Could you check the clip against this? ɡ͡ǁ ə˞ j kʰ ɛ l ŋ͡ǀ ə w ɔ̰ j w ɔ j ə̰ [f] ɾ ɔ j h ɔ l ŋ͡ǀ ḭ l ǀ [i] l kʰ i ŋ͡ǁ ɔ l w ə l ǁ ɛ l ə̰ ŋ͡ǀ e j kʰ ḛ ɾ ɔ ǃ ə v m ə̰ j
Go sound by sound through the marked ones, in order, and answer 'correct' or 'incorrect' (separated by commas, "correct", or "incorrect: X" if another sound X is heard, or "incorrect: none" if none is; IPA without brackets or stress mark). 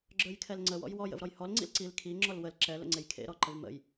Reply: incorrect: v, correct